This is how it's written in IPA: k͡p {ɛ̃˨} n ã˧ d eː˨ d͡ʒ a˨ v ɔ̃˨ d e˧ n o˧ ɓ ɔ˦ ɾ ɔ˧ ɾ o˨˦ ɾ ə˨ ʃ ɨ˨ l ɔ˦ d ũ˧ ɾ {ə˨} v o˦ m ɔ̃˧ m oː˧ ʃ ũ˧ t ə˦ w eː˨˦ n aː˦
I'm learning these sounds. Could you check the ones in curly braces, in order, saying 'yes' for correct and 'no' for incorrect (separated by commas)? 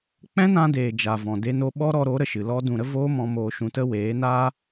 no, no